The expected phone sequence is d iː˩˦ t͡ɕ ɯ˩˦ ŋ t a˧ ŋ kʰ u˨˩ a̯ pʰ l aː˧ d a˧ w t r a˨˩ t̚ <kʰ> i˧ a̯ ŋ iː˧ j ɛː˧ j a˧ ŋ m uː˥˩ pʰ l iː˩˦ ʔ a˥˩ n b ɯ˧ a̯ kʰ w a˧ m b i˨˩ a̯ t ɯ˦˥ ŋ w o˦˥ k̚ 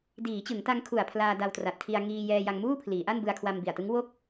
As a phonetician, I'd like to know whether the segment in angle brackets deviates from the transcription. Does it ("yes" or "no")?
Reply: no